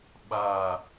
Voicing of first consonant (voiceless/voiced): voiced